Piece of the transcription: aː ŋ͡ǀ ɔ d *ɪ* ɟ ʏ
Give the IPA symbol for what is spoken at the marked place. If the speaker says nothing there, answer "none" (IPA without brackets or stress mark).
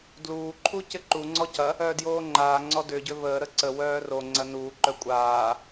ʏ